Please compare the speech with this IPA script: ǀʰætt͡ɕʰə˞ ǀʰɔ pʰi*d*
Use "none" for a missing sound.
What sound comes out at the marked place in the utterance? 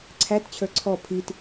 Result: t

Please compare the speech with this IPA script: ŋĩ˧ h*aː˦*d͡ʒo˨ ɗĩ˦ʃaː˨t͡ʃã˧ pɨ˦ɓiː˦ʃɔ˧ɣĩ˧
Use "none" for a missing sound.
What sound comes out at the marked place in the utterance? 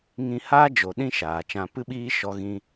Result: aː˦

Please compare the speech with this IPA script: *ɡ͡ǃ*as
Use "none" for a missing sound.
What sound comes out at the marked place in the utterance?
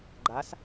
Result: ɡ͡ǃ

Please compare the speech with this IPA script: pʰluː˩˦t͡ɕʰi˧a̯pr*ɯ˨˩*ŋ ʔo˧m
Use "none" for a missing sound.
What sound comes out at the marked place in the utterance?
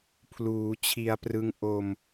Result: ɯ˦˥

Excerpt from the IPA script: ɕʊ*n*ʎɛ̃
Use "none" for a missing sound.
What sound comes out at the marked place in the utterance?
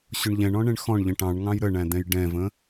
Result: ɳ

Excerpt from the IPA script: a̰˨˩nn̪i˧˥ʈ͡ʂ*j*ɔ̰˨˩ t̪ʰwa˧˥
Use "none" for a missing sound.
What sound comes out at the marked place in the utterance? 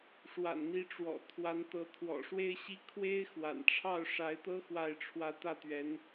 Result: w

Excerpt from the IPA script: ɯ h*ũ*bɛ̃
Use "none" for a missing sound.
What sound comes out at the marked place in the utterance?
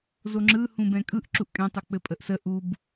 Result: ũ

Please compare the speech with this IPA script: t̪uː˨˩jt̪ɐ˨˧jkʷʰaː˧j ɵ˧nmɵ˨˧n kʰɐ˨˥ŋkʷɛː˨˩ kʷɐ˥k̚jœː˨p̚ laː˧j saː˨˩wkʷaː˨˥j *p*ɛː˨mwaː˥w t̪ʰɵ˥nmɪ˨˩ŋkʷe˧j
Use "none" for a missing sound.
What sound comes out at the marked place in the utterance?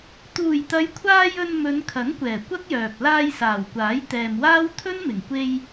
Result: t̪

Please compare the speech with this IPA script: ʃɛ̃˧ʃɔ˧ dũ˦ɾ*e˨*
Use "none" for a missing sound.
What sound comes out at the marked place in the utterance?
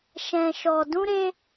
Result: e˦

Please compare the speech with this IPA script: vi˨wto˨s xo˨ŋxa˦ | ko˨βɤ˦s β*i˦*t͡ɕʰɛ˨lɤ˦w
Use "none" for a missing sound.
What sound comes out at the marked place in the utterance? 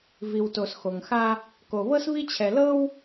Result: i˦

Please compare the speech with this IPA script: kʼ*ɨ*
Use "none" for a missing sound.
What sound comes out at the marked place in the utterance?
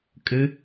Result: ɨ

